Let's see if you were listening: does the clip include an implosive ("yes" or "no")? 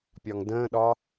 yes